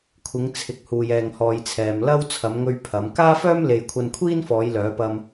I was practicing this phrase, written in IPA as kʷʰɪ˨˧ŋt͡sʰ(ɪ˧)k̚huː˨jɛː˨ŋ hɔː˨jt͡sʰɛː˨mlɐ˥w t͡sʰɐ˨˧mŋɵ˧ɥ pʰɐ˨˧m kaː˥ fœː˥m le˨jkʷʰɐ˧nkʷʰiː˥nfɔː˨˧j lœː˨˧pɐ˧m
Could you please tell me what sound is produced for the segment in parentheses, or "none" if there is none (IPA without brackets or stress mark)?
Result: ɪ˨˥